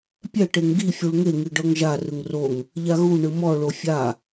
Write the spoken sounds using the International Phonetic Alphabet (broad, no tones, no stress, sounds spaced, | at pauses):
pʲ ɛ ʈ e ŋ ɡ i fʲ u ɭ ŋ e ŋ i ɖ ɤ ŋ ʒ a r ɯ ŋ r o ŋ | ʎ a ɣ u ɳ ɯ m ɔ ɭ o fʲ a